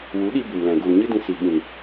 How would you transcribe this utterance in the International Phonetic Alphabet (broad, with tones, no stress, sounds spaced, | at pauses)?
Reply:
w u˨˦ ɗ i˧ b u˨ m l ɛ̃˨ ɡ u˨ l ɲ ɨ˦ d ĩ˧ s i˨ ɓ ĩ˨